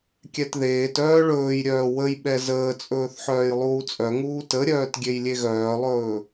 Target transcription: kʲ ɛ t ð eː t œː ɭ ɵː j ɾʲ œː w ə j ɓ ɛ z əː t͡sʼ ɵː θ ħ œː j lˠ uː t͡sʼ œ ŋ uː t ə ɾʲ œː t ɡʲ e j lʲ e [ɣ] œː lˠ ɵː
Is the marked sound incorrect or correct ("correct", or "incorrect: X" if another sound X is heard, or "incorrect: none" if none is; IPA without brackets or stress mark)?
correct